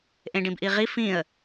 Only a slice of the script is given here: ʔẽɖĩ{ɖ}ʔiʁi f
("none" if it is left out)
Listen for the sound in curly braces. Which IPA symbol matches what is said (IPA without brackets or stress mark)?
b